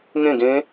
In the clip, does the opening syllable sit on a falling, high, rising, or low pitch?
falling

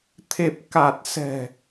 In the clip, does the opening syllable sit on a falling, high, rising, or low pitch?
low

